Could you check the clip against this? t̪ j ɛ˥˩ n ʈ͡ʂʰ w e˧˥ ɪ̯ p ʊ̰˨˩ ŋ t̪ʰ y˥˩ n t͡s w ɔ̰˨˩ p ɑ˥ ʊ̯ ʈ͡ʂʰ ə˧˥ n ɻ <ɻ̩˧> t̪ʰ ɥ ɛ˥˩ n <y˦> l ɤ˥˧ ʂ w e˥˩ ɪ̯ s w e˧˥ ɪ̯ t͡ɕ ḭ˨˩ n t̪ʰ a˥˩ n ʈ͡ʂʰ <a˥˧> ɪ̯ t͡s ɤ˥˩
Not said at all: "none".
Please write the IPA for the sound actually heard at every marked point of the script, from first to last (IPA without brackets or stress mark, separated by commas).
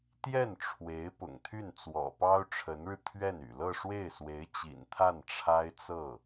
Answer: ɻ̩˧, y̰˨˩, a˥